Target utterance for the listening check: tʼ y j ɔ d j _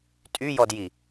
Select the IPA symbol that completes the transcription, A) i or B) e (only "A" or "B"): A